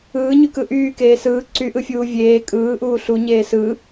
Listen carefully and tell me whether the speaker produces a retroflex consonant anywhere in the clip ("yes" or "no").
no